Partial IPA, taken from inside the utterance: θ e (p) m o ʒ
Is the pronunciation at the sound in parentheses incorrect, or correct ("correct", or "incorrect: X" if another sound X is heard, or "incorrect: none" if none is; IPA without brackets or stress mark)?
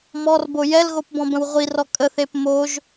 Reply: correct